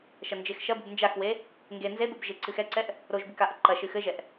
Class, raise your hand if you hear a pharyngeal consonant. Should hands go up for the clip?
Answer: no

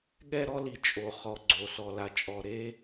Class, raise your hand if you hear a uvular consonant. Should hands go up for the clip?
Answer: yes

